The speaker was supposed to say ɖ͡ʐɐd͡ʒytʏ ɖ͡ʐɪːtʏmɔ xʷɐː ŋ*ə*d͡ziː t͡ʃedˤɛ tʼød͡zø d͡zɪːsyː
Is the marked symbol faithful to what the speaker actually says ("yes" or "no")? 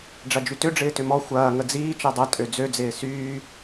yes